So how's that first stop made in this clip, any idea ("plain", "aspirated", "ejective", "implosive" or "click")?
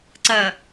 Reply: click